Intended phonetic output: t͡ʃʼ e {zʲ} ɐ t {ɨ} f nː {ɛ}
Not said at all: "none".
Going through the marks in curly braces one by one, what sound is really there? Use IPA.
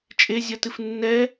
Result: zʲ, ɨ, ɛ

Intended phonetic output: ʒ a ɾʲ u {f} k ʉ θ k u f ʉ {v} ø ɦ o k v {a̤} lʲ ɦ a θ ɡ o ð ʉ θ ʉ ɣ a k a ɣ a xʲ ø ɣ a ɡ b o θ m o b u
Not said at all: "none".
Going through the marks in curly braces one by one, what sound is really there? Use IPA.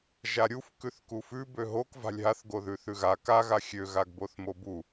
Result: f, b, a̤

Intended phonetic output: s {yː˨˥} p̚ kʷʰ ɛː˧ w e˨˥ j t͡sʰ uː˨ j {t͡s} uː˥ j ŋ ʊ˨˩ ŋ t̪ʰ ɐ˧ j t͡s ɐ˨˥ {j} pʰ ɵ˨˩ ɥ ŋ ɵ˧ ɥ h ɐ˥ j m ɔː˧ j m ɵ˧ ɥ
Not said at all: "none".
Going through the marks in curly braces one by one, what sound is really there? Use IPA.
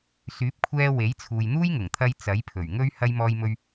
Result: yː˨˥, n̪, j

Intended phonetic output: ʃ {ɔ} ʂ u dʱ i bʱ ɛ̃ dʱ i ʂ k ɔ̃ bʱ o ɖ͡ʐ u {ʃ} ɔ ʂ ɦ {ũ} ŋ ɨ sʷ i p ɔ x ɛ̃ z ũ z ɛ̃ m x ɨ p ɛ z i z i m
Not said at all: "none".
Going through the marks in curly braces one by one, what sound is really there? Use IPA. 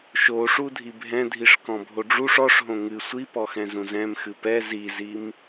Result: o, ʂ, õ

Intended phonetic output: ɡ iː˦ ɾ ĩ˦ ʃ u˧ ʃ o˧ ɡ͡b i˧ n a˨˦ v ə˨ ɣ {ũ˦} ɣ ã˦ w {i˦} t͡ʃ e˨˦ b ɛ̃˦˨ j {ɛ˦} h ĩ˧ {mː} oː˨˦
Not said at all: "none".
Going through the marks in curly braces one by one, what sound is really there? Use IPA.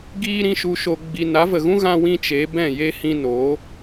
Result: ũ˦, ĩ˦, e˦, n

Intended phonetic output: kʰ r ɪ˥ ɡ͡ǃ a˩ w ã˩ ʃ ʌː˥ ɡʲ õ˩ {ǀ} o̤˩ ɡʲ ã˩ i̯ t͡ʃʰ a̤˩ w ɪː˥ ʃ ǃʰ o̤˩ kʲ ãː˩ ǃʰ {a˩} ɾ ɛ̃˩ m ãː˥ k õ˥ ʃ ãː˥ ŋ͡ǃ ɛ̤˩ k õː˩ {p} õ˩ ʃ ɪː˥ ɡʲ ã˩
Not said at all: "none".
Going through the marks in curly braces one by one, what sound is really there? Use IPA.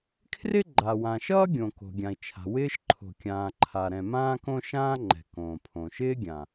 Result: k, a˩, pʰ

